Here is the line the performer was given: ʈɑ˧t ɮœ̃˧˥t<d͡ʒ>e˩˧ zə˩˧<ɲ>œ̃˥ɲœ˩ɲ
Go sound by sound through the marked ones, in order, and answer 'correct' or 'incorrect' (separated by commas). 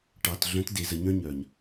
incorrect, correct